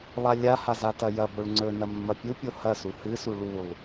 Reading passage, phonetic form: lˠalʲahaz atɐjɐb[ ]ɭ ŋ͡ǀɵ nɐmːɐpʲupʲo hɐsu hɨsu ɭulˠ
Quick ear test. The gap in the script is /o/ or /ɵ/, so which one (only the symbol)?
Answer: o